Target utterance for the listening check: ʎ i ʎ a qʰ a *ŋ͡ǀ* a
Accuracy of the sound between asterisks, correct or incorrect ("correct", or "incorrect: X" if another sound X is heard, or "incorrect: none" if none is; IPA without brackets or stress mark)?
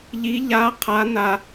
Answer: incorrect: n